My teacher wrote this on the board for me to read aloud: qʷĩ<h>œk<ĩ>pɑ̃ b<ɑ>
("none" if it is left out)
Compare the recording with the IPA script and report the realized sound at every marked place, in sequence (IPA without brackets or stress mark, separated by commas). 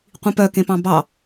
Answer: p, ẽ, ɑ